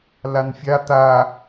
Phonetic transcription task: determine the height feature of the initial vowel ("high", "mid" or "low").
low